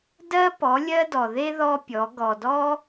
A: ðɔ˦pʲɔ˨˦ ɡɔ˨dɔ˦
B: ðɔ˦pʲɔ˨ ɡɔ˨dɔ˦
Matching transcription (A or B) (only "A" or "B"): A